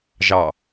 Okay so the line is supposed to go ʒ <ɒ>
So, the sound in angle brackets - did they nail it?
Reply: no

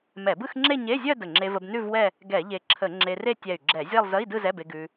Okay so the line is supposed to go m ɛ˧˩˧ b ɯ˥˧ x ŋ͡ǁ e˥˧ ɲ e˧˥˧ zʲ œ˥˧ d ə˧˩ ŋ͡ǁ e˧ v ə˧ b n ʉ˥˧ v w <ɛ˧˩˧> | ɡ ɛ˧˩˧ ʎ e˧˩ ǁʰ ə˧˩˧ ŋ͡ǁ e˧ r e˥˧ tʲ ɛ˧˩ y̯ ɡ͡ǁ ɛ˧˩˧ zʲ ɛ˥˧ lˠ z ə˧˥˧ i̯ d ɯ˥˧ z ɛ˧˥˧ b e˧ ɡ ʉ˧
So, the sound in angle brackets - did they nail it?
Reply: no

